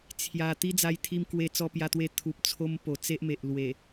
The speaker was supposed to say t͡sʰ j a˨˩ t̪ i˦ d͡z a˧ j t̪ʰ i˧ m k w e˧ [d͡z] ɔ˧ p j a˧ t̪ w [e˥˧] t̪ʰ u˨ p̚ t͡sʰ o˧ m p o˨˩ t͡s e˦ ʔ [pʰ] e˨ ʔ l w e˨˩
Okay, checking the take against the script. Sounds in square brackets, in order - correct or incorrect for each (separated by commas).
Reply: incorrect, incorrect, incorrect